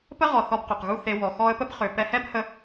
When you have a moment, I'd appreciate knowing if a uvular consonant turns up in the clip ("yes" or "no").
yes